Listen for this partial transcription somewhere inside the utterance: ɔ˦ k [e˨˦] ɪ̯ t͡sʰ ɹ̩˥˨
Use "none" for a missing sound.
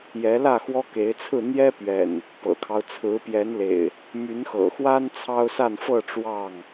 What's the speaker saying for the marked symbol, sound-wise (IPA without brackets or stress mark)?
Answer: e˨˦